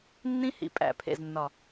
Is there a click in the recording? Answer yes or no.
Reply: no